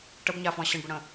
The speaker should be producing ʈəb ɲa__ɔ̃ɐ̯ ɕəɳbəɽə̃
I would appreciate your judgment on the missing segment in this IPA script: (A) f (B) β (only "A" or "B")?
A